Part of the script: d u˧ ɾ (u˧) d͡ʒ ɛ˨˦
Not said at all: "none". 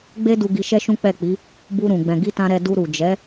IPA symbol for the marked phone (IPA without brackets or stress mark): u˨